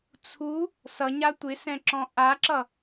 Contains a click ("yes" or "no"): yes